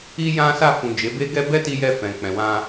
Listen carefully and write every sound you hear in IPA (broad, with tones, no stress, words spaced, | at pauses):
i˧jã˧sa˧ fũ˨ d͡ʒe˨˦be˦ɡɛ˦ bɛ˦ti˧jɛ˧ fɛ̃˨k͡pɛ̃˨wã˧